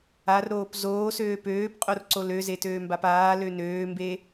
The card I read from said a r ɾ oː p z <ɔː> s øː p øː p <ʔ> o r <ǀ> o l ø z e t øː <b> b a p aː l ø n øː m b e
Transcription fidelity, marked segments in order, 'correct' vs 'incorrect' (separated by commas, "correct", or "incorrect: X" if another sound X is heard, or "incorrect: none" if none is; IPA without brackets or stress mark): incorrect: oː, incorrect: qʼ, correct, incorrect: m